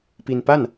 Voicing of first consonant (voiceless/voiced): voiceless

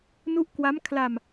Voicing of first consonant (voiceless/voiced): voiced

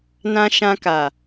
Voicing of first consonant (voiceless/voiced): voiced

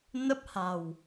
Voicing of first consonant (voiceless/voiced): voiced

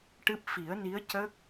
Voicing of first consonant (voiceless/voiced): voiceless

